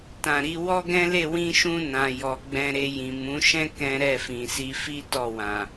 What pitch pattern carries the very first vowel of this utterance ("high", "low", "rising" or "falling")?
low